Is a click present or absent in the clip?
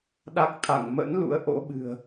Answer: absent